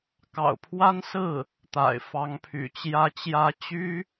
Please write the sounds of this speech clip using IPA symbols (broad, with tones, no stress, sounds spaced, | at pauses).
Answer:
k ɑ̰˨˩ ʊ̯ pʰ w a˥ n s ɹ̩˥˩ | t̪ a̰˨˩ ɪ̯ f ɑ˧˥ ŋ pʰ y̰˨˩ t͡ɕ j ä˧˥ t͡ɕ j ä˧˥ t͡ɕ y˥